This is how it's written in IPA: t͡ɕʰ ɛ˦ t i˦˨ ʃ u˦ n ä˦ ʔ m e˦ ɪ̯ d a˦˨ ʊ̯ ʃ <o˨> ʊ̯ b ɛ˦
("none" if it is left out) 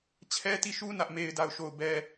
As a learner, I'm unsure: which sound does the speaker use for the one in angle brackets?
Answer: o˦˨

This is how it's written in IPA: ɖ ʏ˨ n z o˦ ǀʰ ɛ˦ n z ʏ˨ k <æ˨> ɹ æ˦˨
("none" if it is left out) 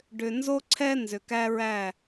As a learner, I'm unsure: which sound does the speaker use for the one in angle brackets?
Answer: æ˦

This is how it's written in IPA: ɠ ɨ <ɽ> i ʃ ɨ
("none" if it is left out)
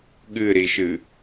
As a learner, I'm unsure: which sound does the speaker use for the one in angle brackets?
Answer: ɾ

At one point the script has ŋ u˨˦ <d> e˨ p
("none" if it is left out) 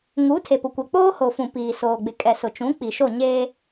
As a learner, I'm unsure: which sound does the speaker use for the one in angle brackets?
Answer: tʰ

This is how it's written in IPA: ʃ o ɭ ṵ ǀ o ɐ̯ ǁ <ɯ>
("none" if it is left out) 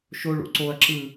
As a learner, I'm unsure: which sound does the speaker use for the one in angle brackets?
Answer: ɯ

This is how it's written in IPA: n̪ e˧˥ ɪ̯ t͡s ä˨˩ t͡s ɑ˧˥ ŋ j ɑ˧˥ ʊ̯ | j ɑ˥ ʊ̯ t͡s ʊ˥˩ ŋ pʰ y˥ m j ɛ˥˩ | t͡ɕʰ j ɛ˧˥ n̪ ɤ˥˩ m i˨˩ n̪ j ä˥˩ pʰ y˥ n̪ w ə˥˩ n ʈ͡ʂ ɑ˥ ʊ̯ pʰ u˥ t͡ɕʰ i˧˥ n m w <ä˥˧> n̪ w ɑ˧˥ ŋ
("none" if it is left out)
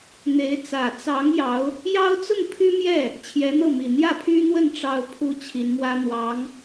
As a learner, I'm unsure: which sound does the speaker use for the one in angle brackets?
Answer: ä˥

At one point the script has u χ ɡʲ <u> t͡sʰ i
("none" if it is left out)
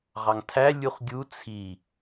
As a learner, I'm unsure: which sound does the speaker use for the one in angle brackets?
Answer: u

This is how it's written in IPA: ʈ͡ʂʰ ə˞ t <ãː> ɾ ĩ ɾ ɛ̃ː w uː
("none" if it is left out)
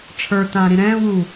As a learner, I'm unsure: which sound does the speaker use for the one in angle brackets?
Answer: ãː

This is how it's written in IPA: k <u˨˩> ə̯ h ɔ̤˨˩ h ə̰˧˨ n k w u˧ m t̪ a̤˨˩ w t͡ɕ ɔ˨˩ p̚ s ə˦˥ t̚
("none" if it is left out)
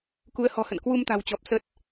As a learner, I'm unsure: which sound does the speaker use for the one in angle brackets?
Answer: u˨˦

